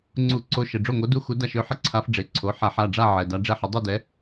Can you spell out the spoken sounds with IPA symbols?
ŋ͡ǀ u˧˩˧ ǀ o˧˥ ʃ ə˩˧˩ ɖ͡ʐ o˥˩ ŋ o˧˥ d u˥˧ x u˧˥ d a˥˧ ʃ ø˧˥ ħ ə˥˧ ǀʰ a˧˥ f ɖ͡ʐ e˩˧˩ ǀʰ o˩˧˩ ħ a˧˩˧ ħ a˩˧˩ ɖ͡ʐ a˥˧ ʕ ɛ˩˧˩ d a˧˥ ɖ͡ʐ ɛ˥˧ ħ ə˧˥ dˤ u˥˧ d ɛ˧˥

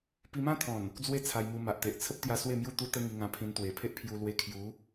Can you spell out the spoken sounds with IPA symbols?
p i˧ m ã˦ t̪ʰ ɔ̃˨˩ n | d͡z w e˦ t͡sʰ a˧ j m u˧ m a˨ ʔ t̪ e˨ ʔ t͡sʰ ə˦ p̚ t̪ j a˧ s w e˥˧ m j u˥˧ t̪ u˧ t̪ ə˧ ŋ i˧ ŋ ã˧ pʰ ĩ˧ n t̪ w e˨˩ pʰ e˦ ʔ pʰ j u˧ l w e˧ kʰ j u˨˦

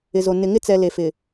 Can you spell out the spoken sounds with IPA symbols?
ɪ˨ z o˨ n ɪ˨ ŋ ɪ˦ t͡s ɛ˨ l e˨ f ɪ˨

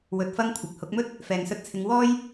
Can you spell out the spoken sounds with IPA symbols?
w ɵ˧ t̚ f ɐ˥ ŋ kʷʰ ɪ˨ k̚ h ʊ˨˥ k̚ m ɵ˥ t̚ | f ɛː˨ ŋ s ɵ˧ t̚ t͡sʰ ɪ˨˧ ŋ w ɔː˥ j

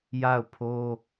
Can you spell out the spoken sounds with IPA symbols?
j a˦˨ ʊ̯ pʰ o˦

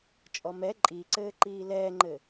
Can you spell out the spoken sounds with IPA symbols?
t͡ʃʼ ɔ m ɛ ǃʼ i ǀ ɘː ǃ iː l ɛː ŋ͡ǃ ɘ

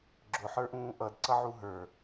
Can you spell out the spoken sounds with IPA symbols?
ɡ͡ǁ ʊ ħ ə˞ ʔ ũː ʔ ʌ d ǀ ʌ ʕ u ɦ ə˞

